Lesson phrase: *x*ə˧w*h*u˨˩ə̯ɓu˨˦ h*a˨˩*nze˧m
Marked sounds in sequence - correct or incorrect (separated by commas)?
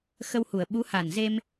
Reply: correct, correct, correct